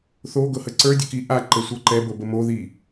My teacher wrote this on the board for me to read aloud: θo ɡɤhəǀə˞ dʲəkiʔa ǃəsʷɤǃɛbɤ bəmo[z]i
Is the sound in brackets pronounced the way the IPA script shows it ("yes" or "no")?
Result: no